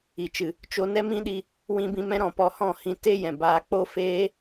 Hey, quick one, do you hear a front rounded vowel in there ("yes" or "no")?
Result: no